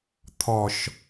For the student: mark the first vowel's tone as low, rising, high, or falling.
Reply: low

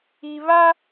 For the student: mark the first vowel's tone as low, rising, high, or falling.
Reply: low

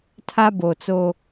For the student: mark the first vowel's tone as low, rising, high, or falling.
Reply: high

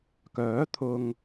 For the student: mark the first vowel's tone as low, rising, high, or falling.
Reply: rising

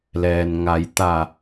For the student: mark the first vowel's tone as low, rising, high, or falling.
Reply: low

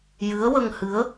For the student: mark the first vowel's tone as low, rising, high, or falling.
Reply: rising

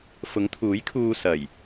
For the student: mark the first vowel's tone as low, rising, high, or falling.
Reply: rising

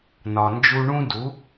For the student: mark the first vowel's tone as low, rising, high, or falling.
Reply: low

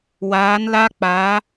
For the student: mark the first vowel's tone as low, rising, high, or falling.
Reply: rising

